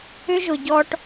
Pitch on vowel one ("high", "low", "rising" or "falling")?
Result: high